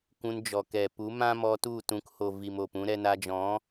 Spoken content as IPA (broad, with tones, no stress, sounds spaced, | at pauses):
kʷ ũ˧ n d͡ʒ ɔ˨ k ɛ˨ p u˨˦ m ã˦ m ɔ˧ t u˦˨ t ũ˨˦ k h o˨ v i˨ m o˨ p ũ˧ ɾ ɛ˧ n a˧ d͡ʒ ɔ̃˨˦